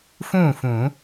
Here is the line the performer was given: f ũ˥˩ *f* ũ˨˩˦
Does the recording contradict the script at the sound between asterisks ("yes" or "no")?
no